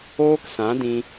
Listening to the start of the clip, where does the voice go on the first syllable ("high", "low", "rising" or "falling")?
high